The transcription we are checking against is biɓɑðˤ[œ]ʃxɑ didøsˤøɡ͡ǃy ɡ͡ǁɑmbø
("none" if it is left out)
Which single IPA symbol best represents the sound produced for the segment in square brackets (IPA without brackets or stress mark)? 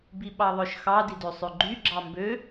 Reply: œ